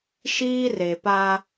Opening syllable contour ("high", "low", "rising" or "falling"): high